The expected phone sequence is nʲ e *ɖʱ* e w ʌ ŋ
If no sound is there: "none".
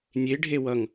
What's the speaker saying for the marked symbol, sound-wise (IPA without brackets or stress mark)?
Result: ɖʱ